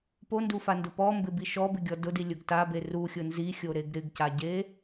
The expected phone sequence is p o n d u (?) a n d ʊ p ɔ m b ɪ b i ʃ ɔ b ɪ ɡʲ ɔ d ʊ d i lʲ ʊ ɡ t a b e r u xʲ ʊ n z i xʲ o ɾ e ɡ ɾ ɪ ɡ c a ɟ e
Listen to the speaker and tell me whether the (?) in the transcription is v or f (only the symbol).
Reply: f